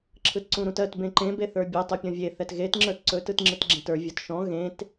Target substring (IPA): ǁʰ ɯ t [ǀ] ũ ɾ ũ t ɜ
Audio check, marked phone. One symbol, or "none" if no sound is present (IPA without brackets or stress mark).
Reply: ǀ